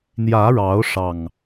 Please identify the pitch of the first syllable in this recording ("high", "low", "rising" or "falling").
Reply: rising